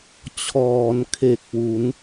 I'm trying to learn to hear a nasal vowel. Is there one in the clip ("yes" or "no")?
no